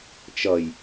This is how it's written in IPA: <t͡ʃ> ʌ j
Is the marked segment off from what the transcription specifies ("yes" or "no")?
no